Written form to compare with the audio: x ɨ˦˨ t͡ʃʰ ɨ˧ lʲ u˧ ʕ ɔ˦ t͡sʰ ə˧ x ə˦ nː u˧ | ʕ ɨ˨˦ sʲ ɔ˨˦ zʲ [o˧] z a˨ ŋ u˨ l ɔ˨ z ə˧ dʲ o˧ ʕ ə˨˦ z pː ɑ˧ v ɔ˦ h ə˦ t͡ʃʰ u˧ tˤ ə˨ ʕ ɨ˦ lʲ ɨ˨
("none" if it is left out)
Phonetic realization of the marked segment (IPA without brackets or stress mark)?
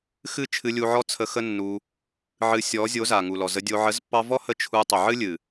o˨˦